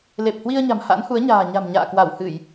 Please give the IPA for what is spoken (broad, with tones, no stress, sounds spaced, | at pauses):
l e˨˩ p̚ h w i˧ ə̯ ɲ a̤˨˩ m h a̰˧˥ n h u˨˦ ə̯ ɲ a̤ː˨˩ ɲ a̤˨˩ m ɲ a̰ː˧˨ k w a˧˩ w h ɨ˧˩˨ j